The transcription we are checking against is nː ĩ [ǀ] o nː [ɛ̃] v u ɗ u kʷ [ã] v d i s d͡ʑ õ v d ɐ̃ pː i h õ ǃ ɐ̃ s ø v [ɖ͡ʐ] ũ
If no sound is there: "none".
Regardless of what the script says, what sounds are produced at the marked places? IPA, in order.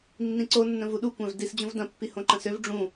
ǀ, ə̃, ã, ɖ͡ʐ

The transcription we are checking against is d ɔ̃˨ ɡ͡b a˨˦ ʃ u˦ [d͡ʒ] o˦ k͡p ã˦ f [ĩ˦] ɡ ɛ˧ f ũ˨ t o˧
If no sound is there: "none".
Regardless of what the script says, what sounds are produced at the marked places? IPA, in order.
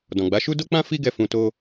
d, i˦

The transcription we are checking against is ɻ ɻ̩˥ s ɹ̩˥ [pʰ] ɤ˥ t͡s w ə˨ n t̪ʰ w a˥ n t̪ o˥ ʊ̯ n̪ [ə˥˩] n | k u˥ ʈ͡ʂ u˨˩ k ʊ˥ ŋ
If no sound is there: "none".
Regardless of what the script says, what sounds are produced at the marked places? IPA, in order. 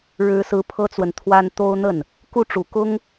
pʰ, ə˥˩

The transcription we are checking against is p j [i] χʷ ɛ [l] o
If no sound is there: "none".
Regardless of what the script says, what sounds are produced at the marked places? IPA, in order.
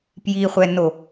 i, n

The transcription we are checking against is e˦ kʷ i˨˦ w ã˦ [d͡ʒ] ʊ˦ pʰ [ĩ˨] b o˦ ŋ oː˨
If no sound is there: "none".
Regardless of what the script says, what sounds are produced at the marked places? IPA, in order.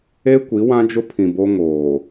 d͡ʒ, ĩ˨

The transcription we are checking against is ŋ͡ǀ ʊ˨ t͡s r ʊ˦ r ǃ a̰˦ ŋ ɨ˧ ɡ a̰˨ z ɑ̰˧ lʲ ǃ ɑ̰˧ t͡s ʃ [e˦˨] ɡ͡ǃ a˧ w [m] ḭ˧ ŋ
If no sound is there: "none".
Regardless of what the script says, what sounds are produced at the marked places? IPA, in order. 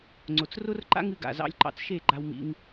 e˦˨, m

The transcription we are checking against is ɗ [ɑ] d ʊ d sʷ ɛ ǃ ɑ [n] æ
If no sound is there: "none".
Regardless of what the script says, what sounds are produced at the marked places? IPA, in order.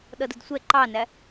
ʌ, n

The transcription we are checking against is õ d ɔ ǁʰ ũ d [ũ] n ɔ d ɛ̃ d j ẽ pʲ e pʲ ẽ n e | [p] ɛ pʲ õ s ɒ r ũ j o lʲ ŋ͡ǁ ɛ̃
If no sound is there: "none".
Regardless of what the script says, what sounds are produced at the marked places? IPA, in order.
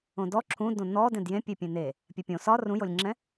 õ, pʲ

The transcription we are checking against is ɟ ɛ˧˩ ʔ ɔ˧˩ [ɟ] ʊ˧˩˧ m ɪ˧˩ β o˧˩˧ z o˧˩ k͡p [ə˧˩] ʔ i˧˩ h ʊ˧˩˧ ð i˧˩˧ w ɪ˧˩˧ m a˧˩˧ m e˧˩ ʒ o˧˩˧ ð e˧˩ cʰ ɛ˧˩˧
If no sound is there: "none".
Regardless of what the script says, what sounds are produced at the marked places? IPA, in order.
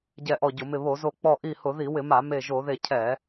ɟ, ɔ˧˩

